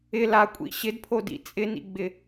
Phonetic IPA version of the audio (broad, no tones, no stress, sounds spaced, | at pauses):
ɪ l a kʷʼ ḭ ɕ ɪ d pʰ o d ḭ t͡sʼ ɪ n ḭ ɡ͡b ɪ